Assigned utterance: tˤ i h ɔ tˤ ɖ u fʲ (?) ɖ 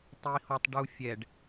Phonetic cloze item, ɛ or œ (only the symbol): ɛ